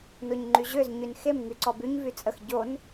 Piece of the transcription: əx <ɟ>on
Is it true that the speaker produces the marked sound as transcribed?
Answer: yes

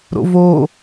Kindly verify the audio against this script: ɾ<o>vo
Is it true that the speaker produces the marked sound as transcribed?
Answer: no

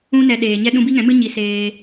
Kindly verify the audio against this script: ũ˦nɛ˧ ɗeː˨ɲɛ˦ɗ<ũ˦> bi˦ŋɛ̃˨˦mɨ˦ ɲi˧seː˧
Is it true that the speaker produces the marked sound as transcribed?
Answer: yes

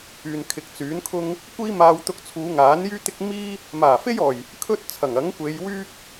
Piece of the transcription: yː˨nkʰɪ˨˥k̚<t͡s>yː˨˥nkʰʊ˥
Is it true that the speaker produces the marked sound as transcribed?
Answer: yes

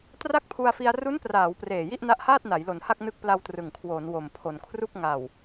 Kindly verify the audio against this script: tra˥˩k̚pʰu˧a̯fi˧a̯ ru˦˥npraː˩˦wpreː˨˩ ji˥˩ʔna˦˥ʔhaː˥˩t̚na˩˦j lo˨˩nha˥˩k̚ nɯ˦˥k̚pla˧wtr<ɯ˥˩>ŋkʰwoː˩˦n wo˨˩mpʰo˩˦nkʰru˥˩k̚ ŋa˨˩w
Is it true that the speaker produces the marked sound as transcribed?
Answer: no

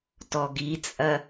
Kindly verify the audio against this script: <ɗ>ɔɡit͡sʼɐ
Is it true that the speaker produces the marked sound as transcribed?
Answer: no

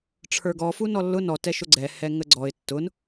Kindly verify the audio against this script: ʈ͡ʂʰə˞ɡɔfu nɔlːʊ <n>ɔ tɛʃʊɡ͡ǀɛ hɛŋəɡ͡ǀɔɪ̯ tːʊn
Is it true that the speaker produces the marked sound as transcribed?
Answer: yes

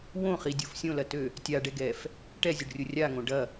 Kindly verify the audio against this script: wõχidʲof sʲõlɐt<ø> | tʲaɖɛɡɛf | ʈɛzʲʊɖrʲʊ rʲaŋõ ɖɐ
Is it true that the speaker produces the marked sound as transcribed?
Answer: yes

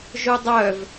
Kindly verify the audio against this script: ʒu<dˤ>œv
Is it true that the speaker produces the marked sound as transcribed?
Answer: yes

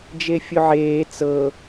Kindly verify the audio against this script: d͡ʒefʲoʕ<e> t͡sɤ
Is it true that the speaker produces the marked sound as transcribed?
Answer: no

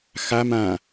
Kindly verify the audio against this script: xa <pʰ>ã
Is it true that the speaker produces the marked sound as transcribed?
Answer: no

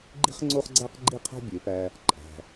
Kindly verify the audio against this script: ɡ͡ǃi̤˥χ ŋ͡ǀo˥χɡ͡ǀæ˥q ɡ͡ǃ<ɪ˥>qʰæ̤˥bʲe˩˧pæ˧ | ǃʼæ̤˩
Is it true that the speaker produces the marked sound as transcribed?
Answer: no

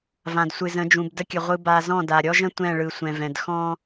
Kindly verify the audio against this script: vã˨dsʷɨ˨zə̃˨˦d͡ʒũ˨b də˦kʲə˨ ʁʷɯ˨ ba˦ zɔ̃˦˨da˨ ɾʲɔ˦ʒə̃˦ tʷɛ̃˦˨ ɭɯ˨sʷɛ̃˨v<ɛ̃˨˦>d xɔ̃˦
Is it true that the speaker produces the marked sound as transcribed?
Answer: no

